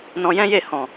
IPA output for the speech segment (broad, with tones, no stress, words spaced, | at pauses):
nɔ̃˧jɛ̃˦je˦˨ hɔ̃˨